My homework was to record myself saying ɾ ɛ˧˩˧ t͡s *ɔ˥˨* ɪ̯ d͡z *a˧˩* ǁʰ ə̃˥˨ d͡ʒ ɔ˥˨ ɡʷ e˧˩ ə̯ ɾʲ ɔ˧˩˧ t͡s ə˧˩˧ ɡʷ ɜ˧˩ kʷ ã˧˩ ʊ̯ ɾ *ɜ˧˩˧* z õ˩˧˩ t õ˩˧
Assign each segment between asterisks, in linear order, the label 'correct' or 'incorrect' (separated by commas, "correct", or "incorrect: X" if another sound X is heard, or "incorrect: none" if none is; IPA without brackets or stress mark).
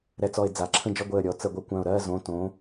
incorrect: ɔ˧˩, incorrect: a˩˧, incorrect: ɜ˥˨